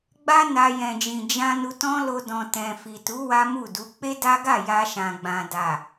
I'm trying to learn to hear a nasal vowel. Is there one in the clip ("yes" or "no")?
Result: yes